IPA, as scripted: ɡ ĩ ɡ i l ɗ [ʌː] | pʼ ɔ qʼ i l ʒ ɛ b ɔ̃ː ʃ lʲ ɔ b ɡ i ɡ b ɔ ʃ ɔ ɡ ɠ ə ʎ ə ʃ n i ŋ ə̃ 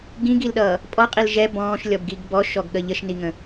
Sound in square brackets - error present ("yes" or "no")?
no